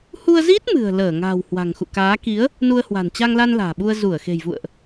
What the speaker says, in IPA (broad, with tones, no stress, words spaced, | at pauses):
hu˧ə̯zi˦˥t̚ mɨ̤˨˩ə̯ləː˧˩ ŋa̤ː˨˩w hwa̤˨˩ŋxṵ˧˨kaː˨˦ ki˨˦ə̯ | nu˧ə̯hwa̤˨˩n t͡ɕa˧ŋla˧n la̤ː˨˩ɓu˧ə̯ zu˧˩ə̯xe̤˨˩jvṵ˧˨ə̯ʔ